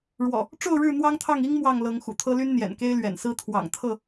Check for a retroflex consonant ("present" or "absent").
present